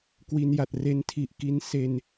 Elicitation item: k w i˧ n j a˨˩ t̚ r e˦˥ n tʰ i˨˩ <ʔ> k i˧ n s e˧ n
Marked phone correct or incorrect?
correct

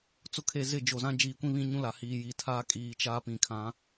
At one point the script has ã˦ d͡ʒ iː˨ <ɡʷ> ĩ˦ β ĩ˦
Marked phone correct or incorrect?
incorrect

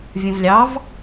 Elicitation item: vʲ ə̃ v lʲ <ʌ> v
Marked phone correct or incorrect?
incorrect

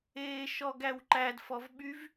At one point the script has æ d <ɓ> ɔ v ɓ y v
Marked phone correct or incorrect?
incorrect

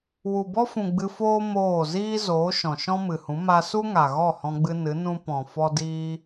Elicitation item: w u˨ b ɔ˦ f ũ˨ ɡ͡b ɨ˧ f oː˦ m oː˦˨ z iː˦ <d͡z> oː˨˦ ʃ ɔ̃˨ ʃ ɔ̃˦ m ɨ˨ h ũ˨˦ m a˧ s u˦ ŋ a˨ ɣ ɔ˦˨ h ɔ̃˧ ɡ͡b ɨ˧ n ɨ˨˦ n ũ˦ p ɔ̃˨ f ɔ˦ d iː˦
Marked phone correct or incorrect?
incorrect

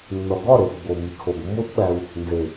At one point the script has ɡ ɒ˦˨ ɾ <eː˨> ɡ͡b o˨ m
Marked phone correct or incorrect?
incorrect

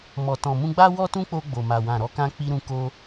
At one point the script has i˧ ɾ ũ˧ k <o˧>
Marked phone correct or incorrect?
correct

